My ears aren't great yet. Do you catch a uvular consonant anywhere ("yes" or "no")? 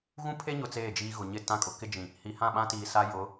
no